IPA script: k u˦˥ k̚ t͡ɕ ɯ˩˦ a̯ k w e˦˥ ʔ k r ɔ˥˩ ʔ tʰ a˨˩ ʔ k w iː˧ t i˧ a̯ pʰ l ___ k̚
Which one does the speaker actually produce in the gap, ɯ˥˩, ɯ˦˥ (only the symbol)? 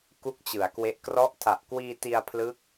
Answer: ɯ˦˥